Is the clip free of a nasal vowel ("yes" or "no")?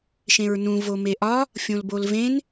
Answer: no